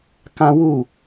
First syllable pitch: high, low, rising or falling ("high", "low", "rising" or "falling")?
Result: high